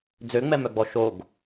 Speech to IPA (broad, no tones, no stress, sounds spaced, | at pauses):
d͡z ø ŋ͡m ɛ m œ ɡ͡b ɔ ʃ o ɡ